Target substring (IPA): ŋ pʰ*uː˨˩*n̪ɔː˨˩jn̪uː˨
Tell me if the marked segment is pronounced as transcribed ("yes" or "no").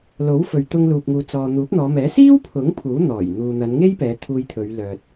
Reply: no